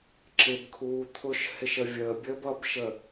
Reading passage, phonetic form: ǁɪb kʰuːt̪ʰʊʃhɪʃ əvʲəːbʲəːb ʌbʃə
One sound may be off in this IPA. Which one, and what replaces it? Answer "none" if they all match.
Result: none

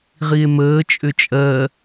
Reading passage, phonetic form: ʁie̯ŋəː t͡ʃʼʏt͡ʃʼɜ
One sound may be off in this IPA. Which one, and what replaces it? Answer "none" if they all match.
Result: ŋ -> m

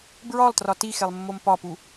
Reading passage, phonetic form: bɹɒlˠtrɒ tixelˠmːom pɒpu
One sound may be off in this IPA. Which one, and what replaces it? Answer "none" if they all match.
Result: none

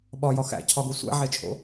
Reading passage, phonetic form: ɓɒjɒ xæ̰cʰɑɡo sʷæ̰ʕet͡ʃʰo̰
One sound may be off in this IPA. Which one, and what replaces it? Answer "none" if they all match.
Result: ɑ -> ɒ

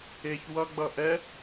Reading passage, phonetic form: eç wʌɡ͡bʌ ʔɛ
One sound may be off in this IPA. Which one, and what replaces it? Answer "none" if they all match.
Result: none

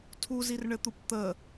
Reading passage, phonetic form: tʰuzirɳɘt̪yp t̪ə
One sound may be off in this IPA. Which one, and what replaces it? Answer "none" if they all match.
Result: y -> u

